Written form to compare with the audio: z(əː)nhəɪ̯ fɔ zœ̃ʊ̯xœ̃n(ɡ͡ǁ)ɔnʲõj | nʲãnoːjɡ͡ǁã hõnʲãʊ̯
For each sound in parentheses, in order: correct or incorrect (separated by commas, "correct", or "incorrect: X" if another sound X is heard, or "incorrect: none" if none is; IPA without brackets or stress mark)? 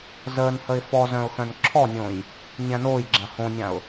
correct, incorrect: ǁʰ